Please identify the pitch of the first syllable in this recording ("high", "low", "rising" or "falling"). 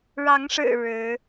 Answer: rising